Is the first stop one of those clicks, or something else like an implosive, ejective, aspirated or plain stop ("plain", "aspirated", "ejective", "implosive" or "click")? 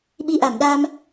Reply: implosive